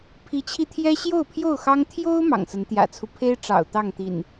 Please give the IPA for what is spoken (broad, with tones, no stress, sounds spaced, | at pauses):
pʰ i˨˦ t͡ɕʰ i˧ t̪ʰ j ɛ˦ ɕ j o˥˨ ʊ̯ pʰ j o˥˨ ʊ̯ x ɑ˦ ŋ t̪ʰ j o˦ ʊ̯ m ɑ̰˨˩ ŋ s ə˨˦ n t̪ j ä̰˨˩ t͡sʰ u˦ pʰ e˦ ɪ̯ ʈ͡ʂ ɑ̰˨˩ ʊ̯ t̪ ɑ˥˨ ŋ t̪ ḭ˨˩ n